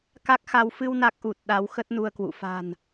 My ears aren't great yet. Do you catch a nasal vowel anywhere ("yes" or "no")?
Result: no